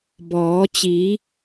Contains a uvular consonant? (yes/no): no